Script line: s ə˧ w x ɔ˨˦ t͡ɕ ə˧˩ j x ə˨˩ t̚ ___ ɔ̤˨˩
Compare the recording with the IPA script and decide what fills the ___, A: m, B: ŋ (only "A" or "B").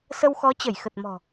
A